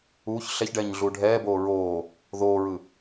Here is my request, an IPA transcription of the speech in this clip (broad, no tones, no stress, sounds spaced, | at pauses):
uː ç ɬ ɛ ç ɖ ɛː ɲ ɮ uː ɖʱ ɛː b oː ɹ oː | ð oː ɹ ɯ